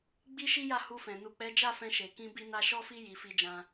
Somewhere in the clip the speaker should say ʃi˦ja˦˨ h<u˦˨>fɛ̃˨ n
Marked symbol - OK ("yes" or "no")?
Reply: no